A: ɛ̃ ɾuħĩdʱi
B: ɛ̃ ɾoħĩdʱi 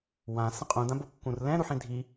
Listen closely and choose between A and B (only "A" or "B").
A